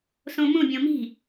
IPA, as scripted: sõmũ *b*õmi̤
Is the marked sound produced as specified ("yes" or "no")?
no